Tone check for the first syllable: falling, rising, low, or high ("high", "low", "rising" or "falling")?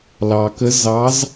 low